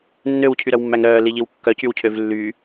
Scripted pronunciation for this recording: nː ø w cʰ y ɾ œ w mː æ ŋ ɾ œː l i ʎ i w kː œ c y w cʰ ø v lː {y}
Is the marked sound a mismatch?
no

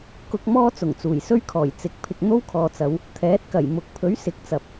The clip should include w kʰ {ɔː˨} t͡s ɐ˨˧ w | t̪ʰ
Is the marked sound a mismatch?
no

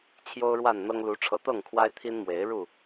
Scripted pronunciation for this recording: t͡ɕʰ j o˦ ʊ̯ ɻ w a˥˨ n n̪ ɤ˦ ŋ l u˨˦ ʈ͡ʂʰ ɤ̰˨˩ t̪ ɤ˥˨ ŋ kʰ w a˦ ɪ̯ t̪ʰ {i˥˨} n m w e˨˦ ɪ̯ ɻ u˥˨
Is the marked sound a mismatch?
yes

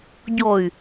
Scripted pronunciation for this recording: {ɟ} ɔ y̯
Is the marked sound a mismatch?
no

